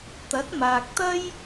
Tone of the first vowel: rising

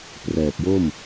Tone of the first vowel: low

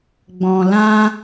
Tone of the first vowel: low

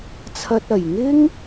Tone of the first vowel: high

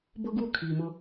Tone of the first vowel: high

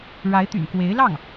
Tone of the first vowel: rising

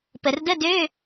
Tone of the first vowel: low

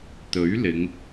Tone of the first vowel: rising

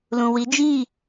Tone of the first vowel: low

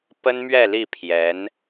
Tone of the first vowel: high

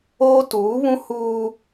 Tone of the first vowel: high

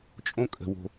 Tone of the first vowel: high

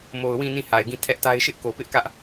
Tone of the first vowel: low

